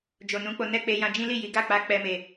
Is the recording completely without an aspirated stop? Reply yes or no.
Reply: yes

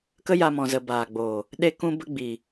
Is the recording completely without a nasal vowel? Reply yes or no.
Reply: no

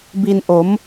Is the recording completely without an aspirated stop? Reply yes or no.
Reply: yes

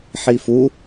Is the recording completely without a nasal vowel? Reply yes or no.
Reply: yes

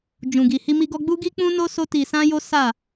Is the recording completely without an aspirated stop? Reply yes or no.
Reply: yes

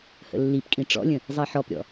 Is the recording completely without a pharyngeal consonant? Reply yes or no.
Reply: no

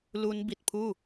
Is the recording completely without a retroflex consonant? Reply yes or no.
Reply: yes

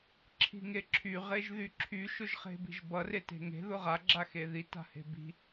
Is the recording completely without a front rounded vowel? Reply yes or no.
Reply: no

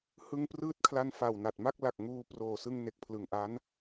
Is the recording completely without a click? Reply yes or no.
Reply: yes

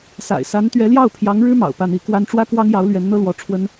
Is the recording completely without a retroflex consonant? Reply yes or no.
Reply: no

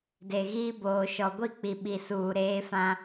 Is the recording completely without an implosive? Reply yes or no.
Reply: no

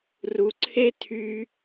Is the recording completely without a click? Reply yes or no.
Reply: no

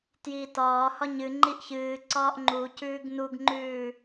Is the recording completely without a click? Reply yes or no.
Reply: no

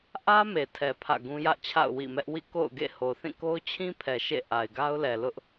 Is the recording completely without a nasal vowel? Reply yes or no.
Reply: no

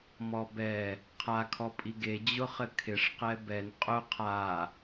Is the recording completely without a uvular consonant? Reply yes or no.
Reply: no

